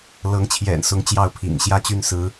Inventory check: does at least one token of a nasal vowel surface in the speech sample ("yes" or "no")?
no